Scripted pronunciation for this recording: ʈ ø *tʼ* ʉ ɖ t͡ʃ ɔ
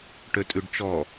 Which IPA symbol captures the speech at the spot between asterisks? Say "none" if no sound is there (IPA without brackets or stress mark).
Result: tʼ